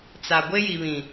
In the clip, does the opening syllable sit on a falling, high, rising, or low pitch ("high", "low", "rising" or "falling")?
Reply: low